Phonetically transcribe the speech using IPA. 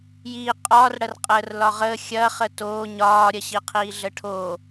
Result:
j iː qʼ ɒː r ɽ ɐ r qʼ əː r l ɒ ʁ əː xʲ ɐ χ ə t oː ɲ ɒː ɾʲ ɐ ɕ i qʰ iː ɮ ə ʈʰ o

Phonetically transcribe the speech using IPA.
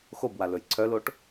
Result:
x o b w a l ɵ j ǀʰ œ l o ʈ

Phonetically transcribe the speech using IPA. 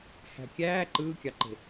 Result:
h æ̤ kʲ æː ǃ ɯː kʲ ɑ ǃ e̤

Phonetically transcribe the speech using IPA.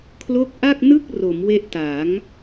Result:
kʰ l o˦˥ k̚ ʔ a˥˩ k̚ n ɯ˥˩ k̚ r o˩˦ m w e˦˥ ʔ t a˩˦ ŋ

